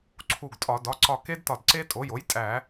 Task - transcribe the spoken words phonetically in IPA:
ǀʰ u˧˩ ɡ tʼ ɒ˧˩˧ d ɒ˩˧˩ ǀ ɒ˧˩ k e˦˥ d t ɒ˧˩ d ǀ e˦˥ tʼ o˩˥ j o˩˥ j tʼ æ˧˩˧

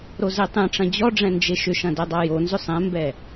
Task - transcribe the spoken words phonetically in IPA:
ɾ o z e tˤ ẽ ʈ͡ʂ ɐ̃ d͡ʑ ɔ ɖ͡ʐ ɛ̃ n d͡ʒ e ʃ ʏ ʃ ɐ̃ d ɛ dˤ a j o n z ʏ sˤ ɛ̃ m b ɛ

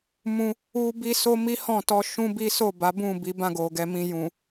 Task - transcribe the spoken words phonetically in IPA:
m ũ˧ | u˦ b i˦ s o˦ m i˦ h ɔ̃˦˨ t ɔ˧ ʃ ũ˦ b i˦ s o˦˨ b a˨˦ b ũ˦˨ b i˨˦ b ã˦˨ ɡ o˨ ɡ ɛ˨ m ĩ˨ j ũ˨

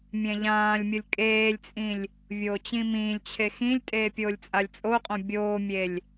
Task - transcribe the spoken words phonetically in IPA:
mʲ ɛ̃ ʎ ãː lʲ mʲ ʊ lʲ kʼ eː lʲ t͡sʼ ĩ lʲ | vʲ oː t͡ɕ ĩ m ĩː lʲ t͡ɕʰ e x ĩ lʲ tʼ eː pʲ oː lʲ t͡sʼ a lʲ t͡sʼ o qʼ õ bʲ oː mʲ e lʲ

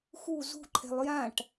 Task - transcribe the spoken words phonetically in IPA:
x u z ṳ ǃʰ ɛ̤ lˠ j ã ʈ

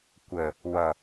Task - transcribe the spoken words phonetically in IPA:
kʷ ə | w ʌ

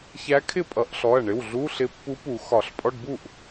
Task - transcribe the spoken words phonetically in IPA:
ç æ˧˥ kʰ ɪ˥˩ pʼ ʌ˨˩˦ ʔ ɬ ɔ˩˧˩ ɐ̯ ɳ ɪ˩˧˩ w ɮ u˧˥˧ ɬ ɪ˧˥ pː u˧˥ p u˨˩˦ x ɒ˨˩˦ ɬ pʼ ɔ˧˥˧ ɖ b u˥˩ ʔ

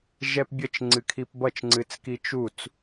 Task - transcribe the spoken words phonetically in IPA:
ʒ ɛ p bʲ ə t͡ʃ ŋ͡ǀ ɨ kʰ i p b ʌ t͡ʃ ŋ͡ǀ ɨ t͡s k i t͡ʃ u t͡s

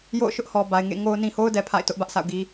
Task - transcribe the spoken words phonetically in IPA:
j o̰˦˨ ʊ̯ ʃ ʊ˦ ʔ h ɔ˨ b a˨ ɪ̯ ŋ ḛ˦˨ ŋ o˦ ʊ̯ n ĩ˨ h o˦ ʊ̯ d ɛ˨ pʰ a̰˦˨ ɪ̯ t ʊ˦ ʔ b ä˦ ʔ s a̰˦˨ ʊ̯ ɡ i˦

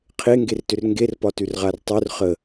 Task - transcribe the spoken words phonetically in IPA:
qʰ e ŋ ɡ e r t ʏ r ŋ ɡ e r p ɒ t ʉ r ʁ a r tˤ ʉ r χ ə

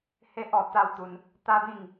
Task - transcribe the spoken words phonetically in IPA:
h e˦ ʔ ɔ˧ t̪ a˥˧ w t̪ u˧ n | t̪ a˦ b ĩ˥˧ ŋ

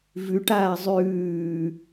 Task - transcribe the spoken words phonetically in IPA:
v ʉ ʈ aː zˤ ʉː

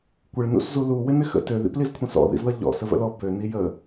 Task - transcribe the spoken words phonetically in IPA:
kʷ ɪ ɭ n ṵ s z u l u w ɪ n ɪ x ə̰ t ø ð ḭ p l i z kʷʰ ə̃ s ɔ̰ ð ḭ z ð ʌ ʎ ɔ̰ s ə v ə̰ l ɔ b ø n i j ə

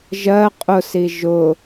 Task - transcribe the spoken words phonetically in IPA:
ʒ ɜ qʼ ʊ s i ʒ ʊ

